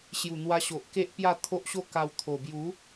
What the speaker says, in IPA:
ɕju˨˩n̪wa˧ɕo˨ʔ ke˦ʔpja˥˧ t̪ʰo˦ʔɕo˥˧ka˧w t̪ʰo˨˩ bju˨˦

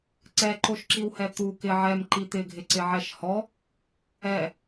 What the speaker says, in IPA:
ǀɛǃoʃǁiwhɛ t̪u kɪ ʕɛm ǃit̪ɪɡʱɪ ǀɪʕɛʃhɔ | ɛ

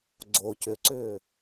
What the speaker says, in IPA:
ɡ͡ǀo cʏǀʏː

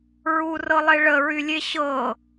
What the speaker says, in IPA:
ɹurɤlˠe ɭəɹylʲe ɕɤ

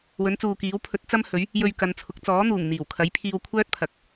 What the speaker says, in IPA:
wɵ˨˥nt͡suː˨kiː˨˥w pʰɵ˨˥t̚t͡sɐ˥mhɵ˨˥ɥ | jɵ˧ɥ kɐ˨˧nt͡sʰʊ˨˥k̚ t͡sɔː˨˥n̪uː˨˩ŋn̪iː˨˩wkʰɐ˨˥j pʰiː˧wkʷʰœː˥t̚pʰɐ˨k̚

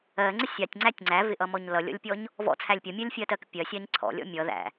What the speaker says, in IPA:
ɜŋ͡ǀɪ sʲɑtʲŋ͡ǀætʲ ŋ͡ǀævɪʔʌmɔɲ lʌlʲɔ̰lʲpʲɔɲ | vɔ̰t͡sʰælʲ pʲʌmʲɜlʲfʲɜtɜk pʲɜsʲɑɲ ǀʰɔ̰lʲɔ̰ mʲʌ ðæ̰

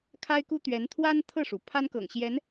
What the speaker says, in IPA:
kʰa˥ɪ̯ku˥t̪ɥɛ˧˥n t̪ʰwa˥nt̪ʰɤ˥˩ʂu˩ pʰa˥nkɤ̰˨˩ŋɕjɛ˧˥n

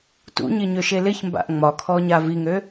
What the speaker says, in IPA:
tṵɲɪ ɲøʃelɪçmba̰ʔ ŋ͡mɒkʰɔ ɲaviŋø

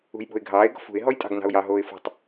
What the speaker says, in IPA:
ṳjɓo̤ɪ̯ɡʱɑːɪ̯ ɡɔ̤fṳɪ̯ ɦɔjtʼɑ̤ɡnɑ̤ʊ̯jɑ ɦoːɪ̯fɔ̤tˤ

